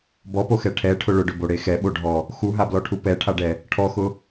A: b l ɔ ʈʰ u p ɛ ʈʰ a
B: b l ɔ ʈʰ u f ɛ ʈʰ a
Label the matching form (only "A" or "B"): A